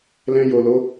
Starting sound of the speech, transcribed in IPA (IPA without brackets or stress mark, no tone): l